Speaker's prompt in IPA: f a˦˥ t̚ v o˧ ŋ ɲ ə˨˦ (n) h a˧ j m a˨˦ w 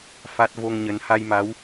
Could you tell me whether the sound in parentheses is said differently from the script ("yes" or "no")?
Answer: no